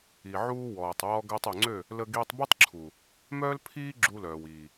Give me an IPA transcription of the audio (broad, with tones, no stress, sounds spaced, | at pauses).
i˨ ʕ uː˧ w ɔː˨ tˤ w ɔ˧ ɡ əː˧ tˤ ø˨ ŋ͡ǀ ø˦˨ | l ə˧ ɡ iː˧ tˤ b u˦ tˤ ǁʰ u˨ | m œː˦ l pʰ iː˦ ɡ͡ǁ u˧ l œː˨ w iː˨